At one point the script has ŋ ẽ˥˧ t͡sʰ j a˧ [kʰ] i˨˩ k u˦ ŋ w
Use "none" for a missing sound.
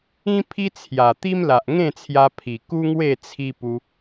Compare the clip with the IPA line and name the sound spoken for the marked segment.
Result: pʰ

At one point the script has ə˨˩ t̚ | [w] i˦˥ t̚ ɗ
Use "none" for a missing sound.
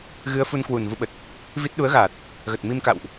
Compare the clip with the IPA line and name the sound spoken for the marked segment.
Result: v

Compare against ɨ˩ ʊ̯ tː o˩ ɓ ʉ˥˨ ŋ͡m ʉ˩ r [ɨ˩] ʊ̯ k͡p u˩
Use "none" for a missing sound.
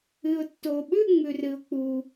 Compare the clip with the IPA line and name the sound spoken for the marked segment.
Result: ɨ˩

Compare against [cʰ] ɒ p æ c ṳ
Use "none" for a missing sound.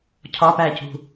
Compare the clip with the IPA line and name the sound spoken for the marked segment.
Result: cʰ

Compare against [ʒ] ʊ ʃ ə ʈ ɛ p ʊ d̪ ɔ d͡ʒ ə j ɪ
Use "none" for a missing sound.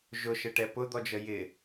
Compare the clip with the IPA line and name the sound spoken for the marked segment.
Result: ʒ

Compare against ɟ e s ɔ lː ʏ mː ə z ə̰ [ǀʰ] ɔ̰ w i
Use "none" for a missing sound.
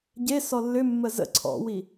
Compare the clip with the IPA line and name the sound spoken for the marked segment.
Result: ǀʰ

